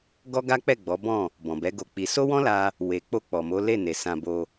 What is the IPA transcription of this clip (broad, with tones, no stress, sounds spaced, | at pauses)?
ɡ ɔ˦ ɡ a˦ k͡p ɛ˦˨ ɡ͡b ɔ˨˦ b ɔ̃˦˨ | b ɔ̃˨ b ɛ˨˦ ɡ o˧ k͡p i˧ s o˦ w ɔ̃˦ l a˧ | w e˨ k͡p o˧ k͡p ɔ˨ m o˨˦ l e˦˨ n e˨ s ã˧ b o˧